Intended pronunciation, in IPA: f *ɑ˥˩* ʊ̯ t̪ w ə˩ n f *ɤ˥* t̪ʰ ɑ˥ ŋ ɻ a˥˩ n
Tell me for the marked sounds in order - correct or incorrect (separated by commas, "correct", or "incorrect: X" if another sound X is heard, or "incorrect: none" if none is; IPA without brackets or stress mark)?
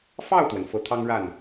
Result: correct, incorrect: ɤ˧˥